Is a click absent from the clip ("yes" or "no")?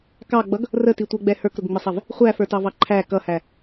no